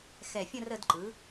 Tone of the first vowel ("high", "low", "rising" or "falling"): low